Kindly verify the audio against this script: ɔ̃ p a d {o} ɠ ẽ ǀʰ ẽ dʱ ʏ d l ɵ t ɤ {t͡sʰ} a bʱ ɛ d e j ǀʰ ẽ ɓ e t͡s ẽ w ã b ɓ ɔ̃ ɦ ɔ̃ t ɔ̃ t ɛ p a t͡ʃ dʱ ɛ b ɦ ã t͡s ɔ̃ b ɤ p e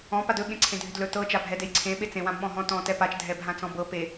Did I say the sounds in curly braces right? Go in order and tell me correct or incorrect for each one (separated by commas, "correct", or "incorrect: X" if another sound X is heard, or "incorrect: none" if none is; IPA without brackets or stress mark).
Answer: incorrect: ɵ, incorrect: t͡ʃ